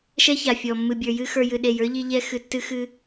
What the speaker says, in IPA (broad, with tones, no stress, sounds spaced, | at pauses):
ʃ ɛ˦ ç a˨ fʲ ɔ˨ mː ɨ˨ bʲ ə˞˨ j ɨ˧ x ə˞˧ j ɨ˨ ɗ e˨ j ə˞˦ ʎ i˧ ʎ ɛ˧ x ɨ˨ tː ɨ˧ x ɨ˧